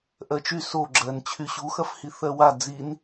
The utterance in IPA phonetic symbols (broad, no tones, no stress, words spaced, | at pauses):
ʔɜt͡ʃy soɡ͡ǁɜn t͡ɕʰyɕuxɐf hiθɜwa d͡zin